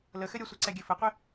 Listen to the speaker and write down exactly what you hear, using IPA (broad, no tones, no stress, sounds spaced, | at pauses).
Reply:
l ə x ɘ ɾʲ ʌ sʷ ʌ ǀ ɛ ɡʲ ɘ f ə qʷ ɘ